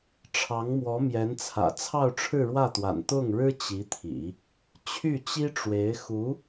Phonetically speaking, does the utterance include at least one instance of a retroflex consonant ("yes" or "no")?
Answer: yes